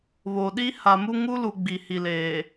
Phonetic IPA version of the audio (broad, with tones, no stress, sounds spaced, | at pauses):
β o˨ ɗ i˦ h a˨ m u˦ ŋ u˦ l u˨ ɡ͡b i˨ h i˨ l eː˨